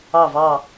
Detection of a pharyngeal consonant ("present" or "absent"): absent